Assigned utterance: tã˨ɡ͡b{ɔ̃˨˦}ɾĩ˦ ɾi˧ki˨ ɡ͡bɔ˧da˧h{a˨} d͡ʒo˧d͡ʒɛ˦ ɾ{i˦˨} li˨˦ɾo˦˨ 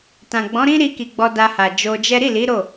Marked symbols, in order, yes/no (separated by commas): yes, yes, yes